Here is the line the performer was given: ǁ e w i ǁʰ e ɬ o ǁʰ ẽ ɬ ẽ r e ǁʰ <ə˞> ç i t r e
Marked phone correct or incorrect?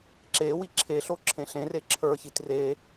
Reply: correct